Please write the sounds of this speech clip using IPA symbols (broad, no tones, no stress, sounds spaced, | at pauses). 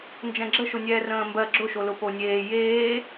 n d͡ʒ ɛ̃ ɡ͡ǁ ə ʃ ʊ nʲ ɛː r ə̃ː m b ɜ ɡ͡ǁ ʊ ʃ o l ʊ p o nʲ eː j eː